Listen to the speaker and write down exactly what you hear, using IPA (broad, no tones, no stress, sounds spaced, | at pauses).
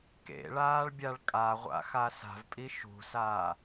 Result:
k ḛ ɭ aː ɭ bʲ a ɭ kʼ a ʁʷ a̰ x a s a̤ v pʼ i ʃ ṳ s aː